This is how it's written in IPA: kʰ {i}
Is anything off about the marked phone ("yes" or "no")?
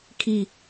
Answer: no